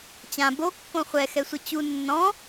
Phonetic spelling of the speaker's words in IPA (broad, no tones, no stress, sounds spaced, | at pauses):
t͡ɕ ã b o kː õ χʷ ɛ x ɛ sʷ ʌ t͡ɕ u nː ɔ̃